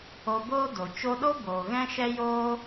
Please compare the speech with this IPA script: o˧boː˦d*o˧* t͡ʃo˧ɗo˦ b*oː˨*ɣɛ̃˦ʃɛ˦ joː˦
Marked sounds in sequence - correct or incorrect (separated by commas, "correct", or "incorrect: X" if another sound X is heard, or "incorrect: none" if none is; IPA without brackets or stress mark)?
incorrect: o˨, correct